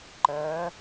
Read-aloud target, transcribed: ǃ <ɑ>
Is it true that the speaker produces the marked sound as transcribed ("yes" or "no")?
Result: no